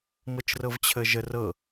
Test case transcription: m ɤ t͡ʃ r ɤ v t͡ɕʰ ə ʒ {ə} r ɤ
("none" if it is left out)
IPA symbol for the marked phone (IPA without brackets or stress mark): ə